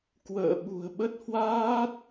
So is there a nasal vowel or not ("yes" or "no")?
no